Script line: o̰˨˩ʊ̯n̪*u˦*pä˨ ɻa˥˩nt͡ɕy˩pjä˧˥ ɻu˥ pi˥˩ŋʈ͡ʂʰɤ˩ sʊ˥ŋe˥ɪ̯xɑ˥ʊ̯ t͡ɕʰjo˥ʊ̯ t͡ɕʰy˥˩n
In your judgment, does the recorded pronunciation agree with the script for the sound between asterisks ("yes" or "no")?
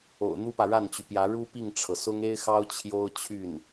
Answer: no